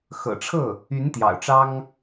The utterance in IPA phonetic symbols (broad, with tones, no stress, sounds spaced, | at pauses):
x ɤ̰˨˩ ʈ͡ʂʰ ɤ˥˩ | y˧˥ n t̪ j ɑ̰˨˩ ʊ̯ ʈ͡ʂ ɑ˥ ŋ